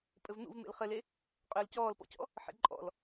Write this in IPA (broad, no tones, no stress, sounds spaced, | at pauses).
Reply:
pʼ ɘ v n̪ ṵ v m ḛ l χ ɘ l e | qʼ ʏː l c ɔː l p ɔ̰ c ɔ̰ | ħ ḛ ǃʼ ɔ̰ l